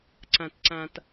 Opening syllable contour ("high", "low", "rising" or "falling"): low